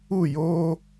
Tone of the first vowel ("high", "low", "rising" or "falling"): falling